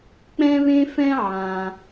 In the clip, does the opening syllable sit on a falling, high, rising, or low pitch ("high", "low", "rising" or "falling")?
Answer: high